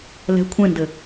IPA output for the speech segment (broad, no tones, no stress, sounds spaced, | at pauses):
l ɛ̤ kʷʰ ẽ n d ɘ